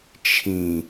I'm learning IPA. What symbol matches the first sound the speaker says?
t͡ʃʰ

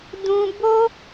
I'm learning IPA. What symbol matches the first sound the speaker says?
d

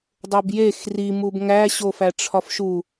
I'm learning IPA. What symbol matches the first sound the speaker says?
dˤ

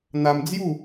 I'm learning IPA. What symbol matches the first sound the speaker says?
n̪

